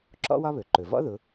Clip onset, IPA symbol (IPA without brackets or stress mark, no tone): ǁ